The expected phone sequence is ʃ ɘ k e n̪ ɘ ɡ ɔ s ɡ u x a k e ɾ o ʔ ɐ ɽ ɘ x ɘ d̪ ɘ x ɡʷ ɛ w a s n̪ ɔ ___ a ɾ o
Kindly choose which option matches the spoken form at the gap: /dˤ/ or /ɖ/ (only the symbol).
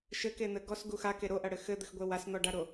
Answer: ɖ